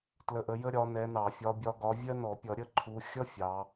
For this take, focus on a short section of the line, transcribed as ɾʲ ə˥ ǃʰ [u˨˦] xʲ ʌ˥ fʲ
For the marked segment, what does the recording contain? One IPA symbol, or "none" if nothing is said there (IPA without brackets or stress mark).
u˨˦